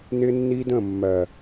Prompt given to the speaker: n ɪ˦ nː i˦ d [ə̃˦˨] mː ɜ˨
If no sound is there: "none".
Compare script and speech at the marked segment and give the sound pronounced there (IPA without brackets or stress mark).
ə̃˦˨